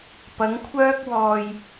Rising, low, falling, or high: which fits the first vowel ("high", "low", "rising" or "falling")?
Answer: rising